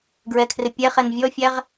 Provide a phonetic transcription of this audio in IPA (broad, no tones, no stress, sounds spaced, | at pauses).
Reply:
ɡ ɹ ɛ kʰ r ɪ pʲ ɛ χ ɛ n vʲ ɔ fʲ æ ʁ